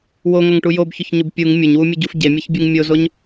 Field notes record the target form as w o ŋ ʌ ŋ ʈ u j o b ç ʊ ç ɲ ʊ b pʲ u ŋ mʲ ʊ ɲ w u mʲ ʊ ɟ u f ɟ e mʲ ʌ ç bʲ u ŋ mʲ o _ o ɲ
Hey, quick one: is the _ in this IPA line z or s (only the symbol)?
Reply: z